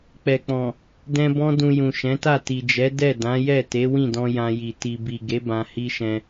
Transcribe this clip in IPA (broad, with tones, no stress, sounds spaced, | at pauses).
k͡p ɛ˨ k͡p ɔ̃˨ | d ɛ̃˧ b ɔ̃˦ d ũ˧ j ũ˨ ʃ ɛ̃˨˦ t a˦˨ t i˨ d͡ʒ ɛ˨˦ d ɛ˦˨ d ã˨˦ j ɛ˦˨ t e˨˦ w ĩ˦˨ d ɔ̃˧ j ã˧ j i˨ t i˨ b i˨ ɡ e˨˦ b ã˧ h i˦ ʃ ɛ̃˧